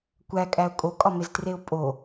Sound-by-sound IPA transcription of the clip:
kʷ æ kʼ æ ʊ̯ kʼ o kʼ ɒ m e z t r e ʊ̯ pʼ o

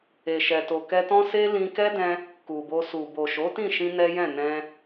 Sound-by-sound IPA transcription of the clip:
e˨ ʃ ɛ˨ t o˨ k ɛ˧ t ɔ̃˦ s e˦ l ĩ˧ k ɛ˦ d ɛ̃˧ | k u˨ b o˧ s u˨ b o˨ ʃ o˨˦ t ĩ˦˨ ʃ ĩ˧ n ɛ˦ j ɛ̃˦˨ n ɛ̃˧

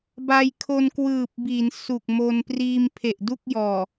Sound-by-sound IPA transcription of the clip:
b a˧ j kʰ o˧ n k w ɯː˨˩ p̚ b i˩˦ n s u˨˩ k̚ m o˧ n p r iː˧ m pʰ e˨˩ ʔ d u˥˩ k̚ j ɔː˨˩

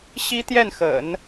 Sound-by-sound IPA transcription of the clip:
ɕ i˥ t̪ j ɛ˥˩ n x ə̰˨˩˦ n

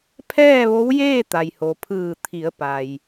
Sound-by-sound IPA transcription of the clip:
pʰ ɛː˥˨ ʋ o˧˥ w j eː˥˨ t̪ a˩ j h o˩ pʰ ɯː˧˩ t̪ʰ i˩˧ ə̯ p a˩ j

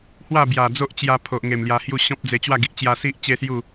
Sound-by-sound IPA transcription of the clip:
h w a˥˧ b j a˨˩ d͡z o˦ ʔ t͡ɕ j a˧ pʰ o˨ ʔ ŋ e˨˩ m l j a˧ h j u˥˧ ɕ ɔ̃˦ p̚ d͡z e˧ t͡ɕ w a˥˧ ɡ i˨ ʔ t͡ɕ j a˧ s i˦ ʔ t͡ɕ e˦ s j u˥˧

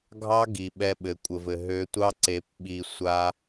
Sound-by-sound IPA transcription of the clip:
ɡʱ ɑ˦ ɡ i˨ ɓ ɛ˧ ɓ ɘ˨ kʷʼ ə˨ v ɘ˨ ɦ ø˨˦ tʷ ɑ˦ ǀ e˨˦ p ɓ i˧ sʷ a˦

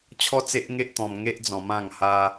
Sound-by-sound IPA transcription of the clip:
t͡ɕʰ ɔ˦ t͡s e˦ ʔ ŋ e˦ ʔ t̪ ɔ̃˧ m ŋ e˦ ʔ d͡z ɔ̃˧ m ã˥˧ ŋ h a˦

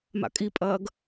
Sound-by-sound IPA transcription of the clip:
m a̰ kʼ i pʼ ɐː ɡ

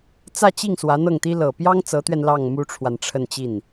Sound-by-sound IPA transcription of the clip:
t͡s ä˥˧ t͡ɕ i˥˩ ŋ s w ä˧˥ n̪ ɤ˥˩ ŋ t̪ i˥ l ɤ˨˩ p j ɑ˥ ŋ t͡s ɤ˧˥ t̪ ɥ ɛ˧ n l ɑ˥˩ ŋ m u˥ ʈ͡ʂʰ w a˨ n ʈ͡ʂʰ ə˥˧ n t͡ɕ i˥˩ n

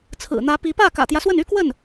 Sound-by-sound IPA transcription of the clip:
t͡sʰ ɹ̩˨˩ n̪ ä˧˥ p i˧˥ p ä˥˩ k ä̰˨˩ t̪ j ä˦ s w ə˥˩ n y˥ k w ə˥˩ n

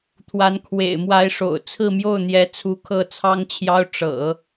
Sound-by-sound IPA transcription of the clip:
t̪ʰ w a˧˥ n kʰ w ḛ˨˩ ɪ̯ m w a˧˥ ɪ̯ ʂ o̰˨˩ ʊ̯ t͡sʰ ɹ̩˥˧ m j o˥˩ ʊ̯ n̪ j ɛ˧˥ t͡sʰ u˧˥ kʰ ɤ˥˩ t͡sʰ ɑ˥ ŋ t͡ɕʰ j ɑ˥ ʊ̯ ʈ͡ʂ ɤ̰˨˩˦

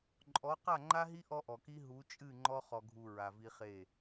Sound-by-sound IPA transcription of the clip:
ǃʼ ɔ˨˦ q a˦˨ ŋ͡ǃ a˦ ɦ i˦ ʔ ɔ˦ ʔ ɔ˨ k i˦ ɦ u˨˦ t͡ʃʼ ɨ˦˨ ŋ͡ǃ ɔ˦ χ ɔ˨ ɡʱ u˨ ɹ a˨ v i˦ χ e˦˨

